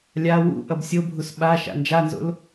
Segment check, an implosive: present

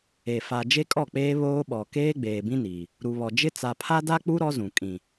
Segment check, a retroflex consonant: absent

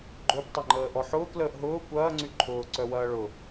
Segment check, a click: present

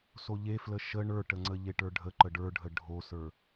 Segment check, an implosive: absent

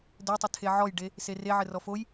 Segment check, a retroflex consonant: present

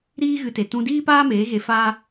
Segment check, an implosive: absent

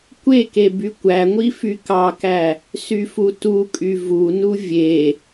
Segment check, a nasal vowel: absent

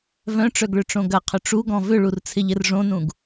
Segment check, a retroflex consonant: present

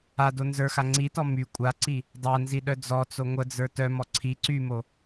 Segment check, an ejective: present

